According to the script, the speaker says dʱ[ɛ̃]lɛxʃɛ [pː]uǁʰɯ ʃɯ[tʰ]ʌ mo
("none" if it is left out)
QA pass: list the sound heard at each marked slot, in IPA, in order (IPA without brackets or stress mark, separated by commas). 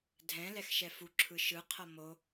ɛ̃, f, qʰ